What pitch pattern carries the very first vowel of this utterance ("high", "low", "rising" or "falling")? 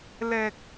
low